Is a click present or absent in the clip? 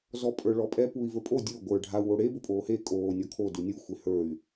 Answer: absent